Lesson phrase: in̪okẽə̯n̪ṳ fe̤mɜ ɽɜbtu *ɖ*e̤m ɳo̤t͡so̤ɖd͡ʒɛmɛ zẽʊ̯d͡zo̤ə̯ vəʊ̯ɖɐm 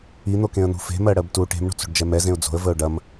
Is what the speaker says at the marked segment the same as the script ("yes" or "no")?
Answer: no